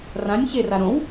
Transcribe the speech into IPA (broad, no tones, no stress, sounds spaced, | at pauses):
r ã nʲ ɕ e r a ɾ õ w